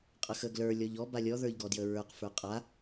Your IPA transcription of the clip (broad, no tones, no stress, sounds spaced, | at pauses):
qʼ ə x ə ɡ l ə˞ lʲ ɔ ʎ ɔ b a lʲ ɔ ð ə˞ ʎ ɡ ɔ d j ə ɹ ə˞ q f ə˞ qʼ a